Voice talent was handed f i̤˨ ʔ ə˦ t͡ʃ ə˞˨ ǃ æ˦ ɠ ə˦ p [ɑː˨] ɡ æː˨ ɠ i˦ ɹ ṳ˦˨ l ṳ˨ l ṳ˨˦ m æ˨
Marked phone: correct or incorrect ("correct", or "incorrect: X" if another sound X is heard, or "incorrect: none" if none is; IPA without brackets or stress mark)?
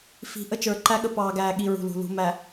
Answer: correct